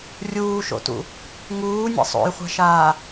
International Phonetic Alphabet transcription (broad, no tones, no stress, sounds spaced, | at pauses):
rʲ uː ʃ o̰ t ṵ | ŋ uː nʲ a̰ sˤ o̰ j χʷ a̤ ʃ aː